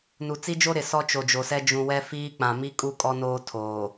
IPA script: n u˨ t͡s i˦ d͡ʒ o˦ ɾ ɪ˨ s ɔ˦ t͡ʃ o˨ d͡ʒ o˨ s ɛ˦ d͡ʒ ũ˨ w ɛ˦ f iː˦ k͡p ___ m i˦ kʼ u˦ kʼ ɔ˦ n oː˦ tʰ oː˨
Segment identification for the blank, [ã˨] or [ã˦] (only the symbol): ã˨